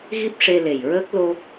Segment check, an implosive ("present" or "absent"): absent